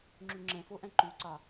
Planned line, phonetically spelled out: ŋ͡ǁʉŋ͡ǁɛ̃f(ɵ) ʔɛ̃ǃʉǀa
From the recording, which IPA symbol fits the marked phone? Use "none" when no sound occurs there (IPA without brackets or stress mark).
o